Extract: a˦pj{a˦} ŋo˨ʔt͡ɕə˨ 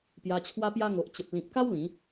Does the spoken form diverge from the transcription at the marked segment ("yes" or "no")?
no